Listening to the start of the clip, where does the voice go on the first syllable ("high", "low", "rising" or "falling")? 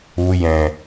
low